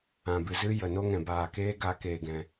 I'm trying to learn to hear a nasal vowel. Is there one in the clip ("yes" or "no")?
yes